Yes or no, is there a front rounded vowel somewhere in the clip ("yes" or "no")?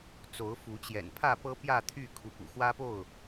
yes